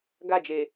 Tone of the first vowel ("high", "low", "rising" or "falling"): falling